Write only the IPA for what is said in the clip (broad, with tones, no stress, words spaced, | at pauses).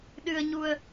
ɗɨ˧ə̯ɲu˧ə̯